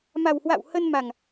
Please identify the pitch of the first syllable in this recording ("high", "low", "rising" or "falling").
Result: low